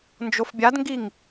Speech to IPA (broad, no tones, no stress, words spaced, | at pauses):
nd͡ʒofbʲadŋɡiŋ